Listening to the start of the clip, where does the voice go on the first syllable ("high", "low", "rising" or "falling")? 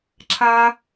high